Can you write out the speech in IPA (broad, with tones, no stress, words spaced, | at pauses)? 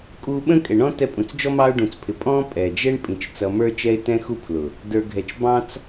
kʼu˧ɓə̃˦kʼɛ˨ɳɔ̃˦ tɛ˧pʼũ˨t͡sd͡ʒɔ˦ mɑ˦ʊ̯ɖũ˨t͡spʰɪ˨˦ pʼɔ̃˦ pʼɛ˨d͡ʒɛ˦ɳ pʼĩ˨t͡ʃ t͡sʌ˧mə˞˦t͡ʃɛ˦ɪ̯ tɛ̃˦xu˦pʰlʊ˨ | də˞˧ɡʱɛ˧t͡ʃ bɑ̃˦t͡s